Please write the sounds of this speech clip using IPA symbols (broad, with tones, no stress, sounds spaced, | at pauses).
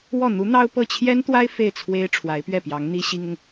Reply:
w ɔ˥˩ n̪ u˧˥ n̪ ɑ˥ ʊ̯ p ɤ˥˩ t͡ɕʰ j ɛ˥ n t̪ w a˥ ɪ̯ f e˥˩ ɪ̯ t͡sʰ w e˥ ɪ̯ ʈ͡ʂʰ w a˧˥ ɪ̯ p ɥ ɛ˥˩ p j ɑ˧˥ ŋ n̪ i˥ ɕ i˥ ŋ ʊ˨ ŋ